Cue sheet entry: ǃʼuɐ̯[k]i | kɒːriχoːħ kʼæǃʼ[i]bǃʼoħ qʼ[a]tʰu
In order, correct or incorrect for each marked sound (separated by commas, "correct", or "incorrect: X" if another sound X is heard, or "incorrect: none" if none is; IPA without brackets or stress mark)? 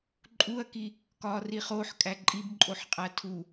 correct, correct, incorrect: æ